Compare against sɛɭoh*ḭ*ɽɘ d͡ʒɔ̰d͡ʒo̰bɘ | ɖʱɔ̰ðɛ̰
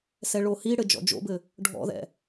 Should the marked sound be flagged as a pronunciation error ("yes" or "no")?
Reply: yes